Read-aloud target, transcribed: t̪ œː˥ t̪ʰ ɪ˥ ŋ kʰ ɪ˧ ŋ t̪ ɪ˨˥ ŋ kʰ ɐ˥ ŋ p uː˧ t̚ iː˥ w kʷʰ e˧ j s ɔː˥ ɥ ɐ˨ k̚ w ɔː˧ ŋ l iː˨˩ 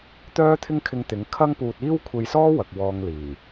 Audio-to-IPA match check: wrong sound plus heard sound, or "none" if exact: ɥ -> w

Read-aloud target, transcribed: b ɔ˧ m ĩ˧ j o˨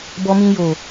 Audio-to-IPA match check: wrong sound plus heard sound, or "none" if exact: none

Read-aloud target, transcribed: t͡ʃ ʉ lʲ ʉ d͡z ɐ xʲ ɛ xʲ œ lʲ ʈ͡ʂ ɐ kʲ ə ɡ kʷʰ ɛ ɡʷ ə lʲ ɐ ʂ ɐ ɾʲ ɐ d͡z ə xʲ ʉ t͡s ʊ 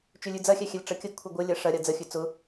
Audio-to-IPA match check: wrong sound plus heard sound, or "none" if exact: œ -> ɛ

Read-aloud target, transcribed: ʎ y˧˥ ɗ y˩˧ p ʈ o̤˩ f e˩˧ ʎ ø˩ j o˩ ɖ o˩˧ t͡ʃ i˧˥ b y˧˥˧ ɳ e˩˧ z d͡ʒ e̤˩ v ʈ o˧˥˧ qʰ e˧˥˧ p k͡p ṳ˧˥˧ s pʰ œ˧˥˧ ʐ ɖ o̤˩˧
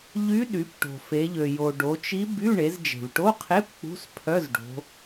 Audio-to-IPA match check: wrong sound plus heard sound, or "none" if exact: ʐ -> z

